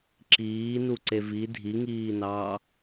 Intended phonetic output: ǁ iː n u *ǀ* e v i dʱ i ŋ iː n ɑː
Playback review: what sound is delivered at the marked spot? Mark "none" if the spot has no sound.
ǀ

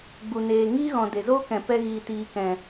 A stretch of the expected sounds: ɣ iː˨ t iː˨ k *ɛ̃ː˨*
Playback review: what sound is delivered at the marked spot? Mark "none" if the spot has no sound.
ɛ̃˨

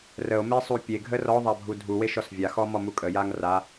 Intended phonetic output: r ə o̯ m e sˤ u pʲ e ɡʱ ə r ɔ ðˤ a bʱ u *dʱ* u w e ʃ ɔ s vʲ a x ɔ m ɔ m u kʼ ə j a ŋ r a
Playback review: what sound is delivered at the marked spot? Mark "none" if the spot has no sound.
dʱ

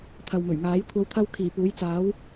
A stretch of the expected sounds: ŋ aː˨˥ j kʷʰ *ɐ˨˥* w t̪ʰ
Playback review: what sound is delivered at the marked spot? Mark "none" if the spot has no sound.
ɐ˨˧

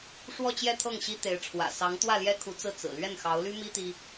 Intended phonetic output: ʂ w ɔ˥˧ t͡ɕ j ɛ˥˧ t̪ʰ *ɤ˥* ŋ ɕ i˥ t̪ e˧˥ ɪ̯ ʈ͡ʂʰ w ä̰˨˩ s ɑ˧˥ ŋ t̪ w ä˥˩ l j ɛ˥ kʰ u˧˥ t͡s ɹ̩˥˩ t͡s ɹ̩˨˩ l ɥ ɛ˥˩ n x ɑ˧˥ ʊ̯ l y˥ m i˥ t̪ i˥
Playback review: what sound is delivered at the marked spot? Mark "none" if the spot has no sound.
ɤ˥˩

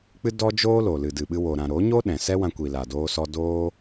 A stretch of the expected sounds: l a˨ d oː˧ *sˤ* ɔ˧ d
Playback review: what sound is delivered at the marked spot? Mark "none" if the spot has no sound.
s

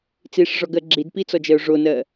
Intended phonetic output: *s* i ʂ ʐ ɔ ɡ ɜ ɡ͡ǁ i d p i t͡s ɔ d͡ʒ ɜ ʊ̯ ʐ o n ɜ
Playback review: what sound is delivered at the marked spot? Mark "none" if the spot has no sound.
t͡s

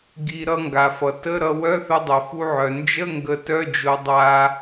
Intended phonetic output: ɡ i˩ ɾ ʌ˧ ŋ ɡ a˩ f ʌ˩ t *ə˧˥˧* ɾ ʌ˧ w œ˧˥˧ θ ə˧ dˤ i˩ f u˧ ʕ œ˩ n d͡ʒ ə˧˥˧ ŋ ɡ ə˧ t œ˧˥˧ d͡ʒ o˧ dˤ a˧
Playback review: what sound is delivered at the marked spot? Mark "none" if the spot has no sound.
ə˧˥˧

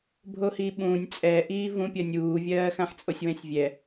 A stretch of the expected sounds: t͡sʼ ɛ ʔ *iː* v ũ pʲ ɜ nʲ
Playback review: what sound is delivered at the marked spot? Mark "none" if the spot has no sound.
iː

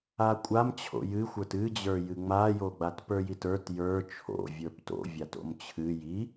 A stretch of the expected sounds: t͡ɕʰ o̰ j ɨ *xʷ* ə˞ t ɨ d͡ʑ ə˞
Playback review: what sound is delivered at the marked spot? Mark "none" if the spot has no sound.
xʷ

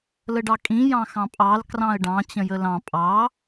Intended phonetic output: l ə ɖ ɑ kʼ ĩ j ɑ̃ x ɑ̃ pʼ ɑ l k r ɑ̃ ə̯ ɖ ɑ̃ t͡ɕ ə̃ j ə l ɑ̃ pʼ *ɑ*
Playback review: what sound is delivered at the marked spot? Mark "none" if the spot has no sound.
ɑ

